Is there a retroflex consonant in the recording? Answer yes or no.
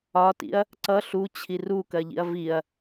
no